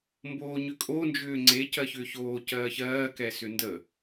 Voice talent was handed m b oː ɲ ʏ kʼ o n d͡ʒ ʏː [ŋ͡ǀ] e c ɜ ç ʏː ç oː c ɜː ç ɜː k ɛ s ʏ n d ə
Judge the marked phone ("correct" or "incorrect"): correct